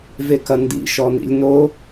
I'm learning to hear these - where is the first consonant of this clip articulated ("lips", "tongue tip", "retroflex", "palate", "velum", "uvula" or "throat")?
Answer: lips